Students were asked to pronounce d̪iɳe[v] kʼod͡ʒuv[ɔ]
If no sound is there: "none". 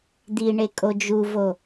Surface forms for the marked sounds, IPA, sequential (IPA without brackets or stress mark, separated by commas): none, o